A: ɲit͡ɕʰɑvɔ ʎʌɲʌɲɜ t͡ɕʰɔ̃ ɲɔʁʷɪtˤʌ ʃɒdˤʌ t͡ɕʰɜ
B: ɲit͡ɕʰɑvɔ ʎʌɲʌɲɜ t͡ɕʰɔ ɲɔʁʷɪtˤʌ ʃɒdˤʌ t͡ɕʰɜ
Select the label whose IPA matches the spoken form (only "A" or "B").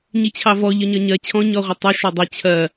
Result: A